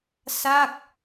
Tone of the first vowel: falling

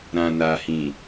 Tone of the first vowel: low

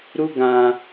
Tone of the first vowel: high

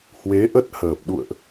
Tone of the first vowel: rising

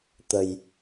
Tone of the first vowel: low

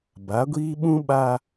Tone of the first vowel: rising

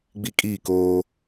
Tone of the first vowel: high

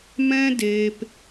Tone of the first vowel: high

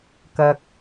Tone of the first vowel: low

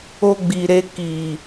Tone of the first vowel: high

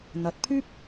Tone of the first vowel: rising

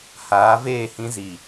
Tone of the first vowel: rising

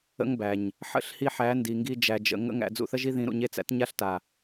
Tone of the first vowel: high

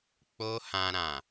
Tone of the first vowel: high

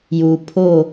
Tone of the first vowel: low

